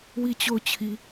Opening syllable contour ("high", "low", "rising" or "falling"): falling